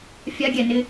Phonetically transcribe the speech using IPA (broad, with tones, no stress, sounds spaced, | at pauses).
fʲ a˧˥ ɡʲ ɛ˩ n ɪ˧